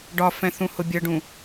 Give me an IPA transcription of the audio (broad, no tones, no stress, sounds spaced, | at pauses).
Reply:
ɖ ɒ f ɛ̃ θ ũ h ʊ bʲ ʌ ɖ ũ